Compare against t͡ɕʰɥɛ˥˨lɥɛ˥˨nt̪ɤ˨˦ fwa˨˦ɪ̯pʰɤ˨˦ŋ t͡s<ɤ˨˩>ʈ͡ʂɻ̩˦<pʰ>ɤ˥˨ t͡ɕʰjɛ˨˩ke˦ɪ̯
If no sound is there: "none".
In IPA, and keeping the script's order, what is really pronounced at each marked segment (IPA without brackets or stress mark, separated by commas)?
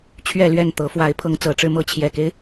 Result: ɤ˨˩, m